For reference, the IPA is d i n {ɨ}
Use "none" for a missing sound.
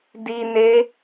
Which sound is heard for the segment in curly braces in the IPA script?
e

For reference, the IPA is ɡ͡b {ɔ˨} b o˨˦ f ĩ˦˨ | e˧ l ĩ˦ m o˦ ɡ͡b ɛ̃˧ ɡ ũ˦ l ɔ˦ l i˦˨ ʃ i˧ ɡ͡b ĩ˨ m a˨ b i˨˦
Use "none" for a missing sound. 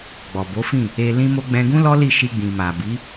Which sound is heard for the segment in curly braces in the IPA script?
ɔ˨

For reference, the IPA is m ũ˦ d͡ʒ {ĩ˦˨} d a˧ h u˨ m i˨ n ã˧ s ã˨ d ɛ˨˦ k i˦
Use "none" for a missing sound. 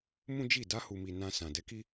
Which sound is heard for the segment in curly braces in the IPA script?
i˦˨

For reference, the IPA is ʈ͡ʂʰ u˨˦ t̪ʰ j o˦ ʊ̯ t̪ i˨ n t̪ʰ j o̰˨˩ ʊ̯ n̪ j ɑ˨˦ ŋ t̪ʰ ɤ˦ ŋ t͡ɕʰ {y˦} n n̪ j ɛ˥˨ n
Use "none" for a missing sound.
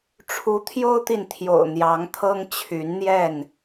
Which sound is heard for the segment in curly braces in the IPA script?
y˨˦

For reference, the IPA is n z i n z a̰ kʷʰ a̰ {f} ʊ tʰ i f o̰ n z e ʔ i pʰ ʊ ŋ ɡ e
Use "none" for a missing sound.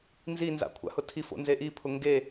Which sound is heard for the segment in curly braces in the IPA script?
h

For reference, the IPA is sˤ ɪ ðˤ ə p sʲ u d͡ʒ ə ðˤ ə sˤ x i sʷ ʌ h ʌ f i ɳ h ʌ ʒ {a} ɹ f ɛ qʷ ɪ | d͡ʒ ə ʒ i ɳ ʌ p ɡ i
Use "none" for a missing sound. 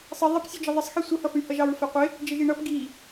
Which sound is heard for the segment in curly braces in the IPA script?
ɑ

